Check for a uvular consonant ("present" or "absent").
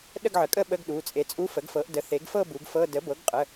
present